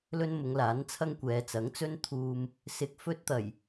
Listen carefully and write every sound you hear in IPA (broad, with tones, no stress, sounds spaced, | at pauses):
l ɵ˥ n m ʊ˨˧ ŋ l aː˨˥ n t͡sʰ ɐ˥ ŋ kʷ ɛː˨˧ t͡s ɐ˨˥ ŋ t͡s ɵ˥ n t̪ʰ uː˧ m | s ɪ˧ k̚ f ɵ˥ t̚ t̪ ɐ˨˩ j